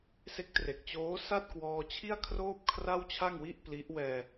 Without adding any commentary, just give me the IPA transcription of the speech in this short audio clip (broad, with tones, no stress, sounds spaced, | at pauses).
s e˦˥ k̚ t r e˨˩ k̚ t͡ɕ oː˦˥ s a˥˩ t̚ k w ɔː˧ t͡ɕʰ i˥˩ a̯ kʰ r oː˥˩ p̚ kʰ r a˥˩ w t͡ɕʰ a˥˩ ŋ w i˥˩ ʔ p l i˦˥ ʔ w ɛː˧